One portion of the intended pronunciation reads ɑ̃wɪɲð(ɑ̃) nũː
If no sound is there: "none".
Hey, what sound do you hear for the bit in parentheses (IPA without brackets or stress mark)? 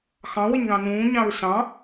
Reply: ɑ̃